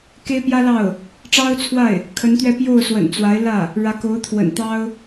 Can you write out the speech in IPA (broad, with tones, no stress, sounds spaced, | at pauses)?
k e˥ ɪ̯ p j ä˥ l ɑ˥˩ ʊ̯ | ʈ͡ʂ ɑ˥ ʊ̯ t͡sʰ w a˥˩ ɪ̯ | kʰ ə˧˥ n t̪ ɥ ɛ˥˧ p j o˥˩ ʊ̯ s w ə̰˨˩ n t͡s w a˧˥ ɪ̯ l ä˥˩ | ɻ ä˧˥ k o˧˥ ʊ̯ t̪ʰ w ə̰˨˩ n t̪ ɑ˥ ʊ̯